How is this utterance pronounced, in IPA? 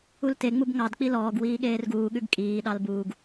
u l t e ŋ͡m u b ŋ ɑ d k͡p i l ɔː ɡ w iː ɠ eː r ɡ uː ɠ ʉ ɡ kʼ iː ɗ ɑ l b uː ɡ

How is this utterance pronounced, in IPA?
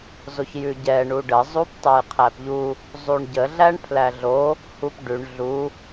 z o ç j ʉ ɟ ɛ ɳ u ɖ ə zˤ u p tˤ ɛ j qʰ æ p ʎ u | zˤ u ɳ ɟ ə ɮ æ ɳ pʰ l æ ɮ o | h u p ɖ ʉ ɳ ɮ u

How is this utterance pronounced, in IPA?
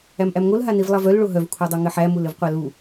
æ m ʔ æ m ŋ o l ɦ a n i v lˠ a v œ l ɭ o ɦ œ v kʷʰ a dˤ œ ŋ ɘ ħ æ m u l ɘ v qʷ a l u

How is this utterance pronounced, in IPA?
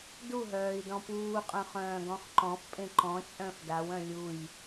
d u ɦ œː i̯ d ɔ̃ p uː qʼ œ̃ χ œ̃ː ɡ ɔ̃ χ ǃ ɔ̃ f pʼ ẽ ǃ ɔ̃ t͡ʃʼ œ̃ f d a w œ̃ lʲ u j

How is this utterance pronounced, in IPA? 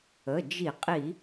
ə˩˧˩ d͡ʒ i˧˩˧ qʼ i˧˩˧

